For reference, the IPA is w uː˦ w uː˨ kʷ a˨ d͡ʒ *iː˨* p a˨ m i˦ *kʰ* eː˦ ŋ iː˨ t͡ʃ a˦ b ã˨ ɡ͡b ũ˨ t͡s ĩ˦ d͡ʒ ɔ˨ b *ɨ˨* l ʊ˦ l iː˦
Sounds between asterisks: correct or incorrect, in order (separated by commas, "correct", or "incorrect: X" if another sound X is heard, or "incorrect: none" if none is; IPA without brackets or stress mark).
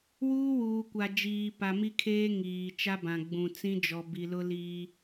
correct, correct, incorrect: i˨